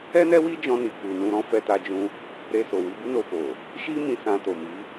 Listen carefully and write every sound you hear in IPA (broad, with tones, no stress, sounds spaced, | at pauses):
ɛ˦ n ɛ˦ w i˦ d͡ʒ ɔ̃˧ n i˨ k͡p u˨ n ũ˧ ɾ ɔ̃˦ f ɛ˧ t a˧ d͡ʒ ũ˧ | ɾ e˧ s o˨ w i˧ b u˦ n o˧ f o˨ | ʃ i˦ m ĩ˧ s ã˧ t o˨ m i˨˦